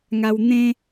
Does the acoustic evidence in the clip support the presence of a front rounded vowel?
no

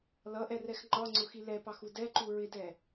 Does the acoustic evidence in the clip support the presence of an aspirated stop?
no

